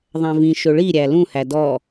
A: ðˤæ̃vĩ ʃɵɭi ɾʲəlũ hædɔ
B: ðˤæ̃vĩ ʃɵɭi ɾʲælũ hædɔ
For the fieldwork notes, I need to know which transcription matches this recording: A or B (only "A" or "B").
B